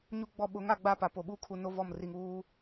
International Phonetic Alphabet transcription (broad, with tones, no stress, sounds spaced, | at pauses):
ɲ u˨ ɡ͡b ɔ˨ ɓ ʊ˨˦ ŋ a˨ ɡ͡b a˦˨ p a˨ p o˨ ɓ u˦ kʰ u˨ n o˦ v ɔ˦˨ m r i˨ ŋ uː˦